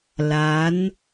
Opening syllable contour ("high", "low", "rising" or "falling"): rising